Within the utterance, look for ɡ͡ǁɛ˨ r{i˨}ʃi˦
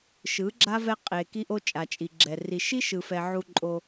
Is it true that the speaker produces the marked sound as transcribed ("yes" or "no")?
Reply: yes